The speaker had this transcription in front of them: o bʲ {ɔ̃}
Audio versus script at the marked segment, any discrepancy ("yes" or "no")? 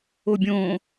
yes